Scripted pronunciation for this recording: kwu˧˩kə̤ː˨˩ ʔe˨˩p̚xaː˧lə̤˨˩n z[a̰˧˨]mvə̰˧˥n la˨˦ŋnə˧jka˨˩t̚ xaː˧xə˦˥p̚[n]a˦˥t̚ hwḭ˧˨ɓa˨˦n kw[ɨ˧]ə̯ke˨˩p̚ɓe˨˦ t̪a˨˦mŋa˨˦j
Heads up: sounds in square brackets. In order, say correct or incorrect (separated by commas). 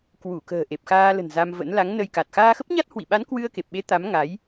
incorrect, incorrect, correct